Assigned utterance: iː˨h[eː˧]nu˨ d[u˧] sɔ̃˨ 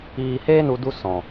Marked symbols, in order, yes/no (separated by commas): yes, yes